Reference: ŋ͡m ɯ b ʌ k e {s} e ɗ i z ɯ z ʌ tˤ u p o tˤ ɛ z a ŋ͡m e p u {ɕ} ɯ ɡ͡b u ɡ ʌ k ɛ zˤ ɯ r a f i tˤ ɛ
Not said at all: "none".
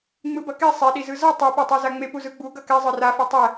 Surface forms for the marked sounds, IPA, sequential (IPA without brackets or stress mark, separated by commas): sˤ, z